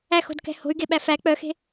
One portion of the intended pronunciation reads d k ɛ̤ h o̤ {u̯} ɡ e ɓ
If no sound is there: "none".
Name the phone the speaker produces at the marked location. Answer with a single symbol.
y̯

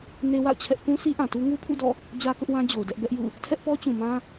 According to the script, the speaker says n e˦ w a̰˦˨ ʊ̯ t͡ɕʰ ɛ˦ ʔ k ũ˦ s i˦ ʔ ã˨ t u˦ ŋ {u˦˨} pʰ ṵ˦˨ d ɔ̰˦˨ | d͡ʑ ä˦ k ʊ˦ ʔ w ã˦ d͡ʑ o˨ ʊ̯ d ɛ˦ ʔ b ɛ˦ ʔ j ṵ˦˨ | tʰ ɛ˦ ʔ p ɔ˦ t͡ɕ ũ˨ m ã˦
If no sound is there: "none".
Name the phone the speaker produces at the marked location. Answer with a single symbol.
u˦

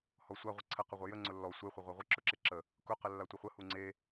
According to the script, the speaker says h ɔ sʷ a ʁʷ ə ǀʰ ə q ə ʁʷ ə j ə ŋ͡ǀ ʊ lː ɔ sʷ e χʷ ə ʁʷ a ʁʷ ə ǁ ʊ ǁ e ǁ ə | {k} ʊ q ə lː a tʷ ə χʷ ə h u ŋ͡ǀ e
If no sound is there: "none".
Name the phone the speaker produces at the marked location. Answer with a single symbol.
k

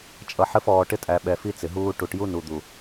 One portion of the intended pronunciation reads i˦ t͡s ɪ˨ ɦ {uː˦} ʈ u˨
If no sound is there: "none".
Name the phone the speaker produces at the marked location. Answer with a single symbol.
uː˦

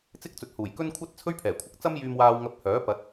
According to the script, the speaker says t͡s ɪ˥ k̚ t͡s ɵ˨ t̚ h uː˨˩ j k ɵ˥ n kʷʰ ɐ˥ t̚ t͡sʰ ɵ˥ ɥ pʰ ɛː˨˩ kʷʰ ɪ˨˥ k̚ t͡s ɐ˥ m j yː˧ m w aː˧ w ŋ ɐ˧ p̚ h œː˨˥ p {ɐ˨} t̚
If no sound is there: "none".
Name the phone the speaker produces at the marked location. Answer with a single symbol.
ɐ˨˥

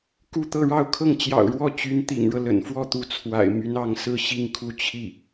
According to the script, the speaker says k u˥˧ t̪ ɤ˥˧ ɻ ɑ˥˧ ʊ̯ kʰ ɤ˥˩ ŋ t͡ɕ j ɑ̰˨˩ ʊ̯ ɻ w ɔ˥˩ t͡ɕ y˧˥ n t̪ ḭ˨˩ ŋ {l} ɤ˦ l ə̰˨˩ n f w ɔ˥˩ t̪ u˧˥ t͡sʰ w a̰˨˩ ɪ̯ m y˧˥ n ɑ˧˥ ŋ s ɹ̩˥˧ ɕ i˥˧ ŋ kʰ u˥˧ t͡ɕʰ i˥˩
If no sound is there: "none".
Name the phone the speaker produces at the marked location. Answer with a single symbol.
ɻ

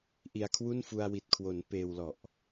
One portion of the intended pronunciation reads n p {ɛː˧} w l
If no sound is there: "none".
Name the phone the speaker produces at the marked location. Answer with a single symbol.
eː˧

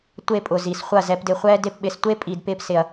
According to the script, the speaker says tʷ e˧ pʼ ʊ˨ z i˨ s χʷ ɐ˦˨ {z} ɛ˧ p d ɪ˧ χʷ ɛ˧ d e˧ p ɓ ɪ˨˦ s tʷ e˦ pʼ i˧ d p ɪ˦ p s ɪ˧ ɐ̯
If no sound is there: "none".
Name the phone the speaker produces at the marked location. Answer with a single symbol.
z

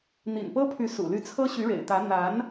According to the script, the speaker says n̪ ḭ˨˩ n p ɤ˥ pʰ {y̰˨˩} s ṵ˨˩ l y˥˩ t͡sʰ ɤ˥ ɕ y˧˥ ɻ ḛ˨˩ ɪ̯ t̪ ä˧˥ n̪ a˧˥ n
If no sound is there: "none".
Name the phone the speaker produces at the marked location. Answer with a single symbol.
y˧˥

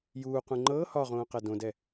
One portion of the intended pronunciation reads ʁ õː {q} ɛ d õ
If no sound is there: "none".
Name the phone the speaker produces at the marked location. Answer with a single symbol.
q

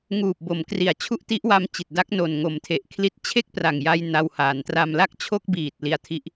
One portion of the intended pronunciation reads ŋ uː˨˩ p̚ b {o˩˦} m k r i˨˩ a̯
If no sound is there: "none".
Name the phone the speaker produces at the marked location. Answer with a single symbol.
o˩˦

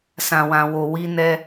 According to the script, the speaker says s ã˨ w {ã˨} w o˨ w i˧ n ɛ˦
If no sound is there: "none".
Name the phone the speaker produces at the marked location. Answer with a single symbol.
ã˨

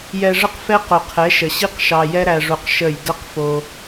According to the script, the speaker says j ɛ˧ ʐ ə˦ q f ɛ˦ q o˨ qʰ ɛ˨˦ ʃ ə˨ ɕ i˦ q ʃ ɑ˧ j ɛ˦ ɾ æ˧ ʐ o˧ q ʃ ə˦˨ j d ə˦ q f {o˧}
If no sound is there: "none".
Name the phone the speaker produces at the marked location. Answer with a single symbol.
o˧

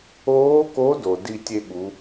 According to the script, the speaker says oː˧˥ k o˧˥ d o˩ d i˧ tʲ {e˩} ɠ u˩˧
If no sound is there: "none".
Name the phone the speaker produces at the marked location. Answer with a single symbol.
e˧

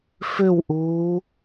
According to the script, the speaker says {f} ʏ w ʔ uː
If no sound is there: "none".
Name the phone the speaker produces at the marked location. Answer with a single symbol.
f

